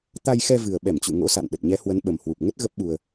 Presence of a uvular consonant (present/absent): absent